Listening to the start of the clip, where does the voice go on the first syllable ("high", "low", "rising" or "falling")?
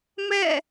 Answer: falling